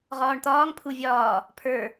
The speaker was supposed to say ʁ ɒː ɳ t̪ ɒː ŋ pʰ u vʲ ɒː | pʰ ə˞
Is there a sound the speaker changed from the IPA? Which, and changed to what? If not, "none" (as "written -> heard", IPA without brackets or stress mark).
none